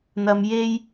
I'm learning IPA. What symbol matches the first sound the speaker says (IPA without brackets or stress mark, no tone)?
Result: n̪